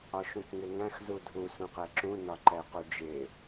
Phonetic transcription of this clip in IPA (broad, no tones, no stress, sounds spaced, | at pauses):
ɒ ʃ ũ k ŋ ɪ ŋ æ̃ x z u dʱ u s ũ q ɛ ǁ ũ n ɒ ǃ ɛ q u d͡ʒ ɪ